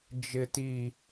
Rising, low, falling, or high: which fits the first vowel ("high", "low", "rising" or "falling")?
low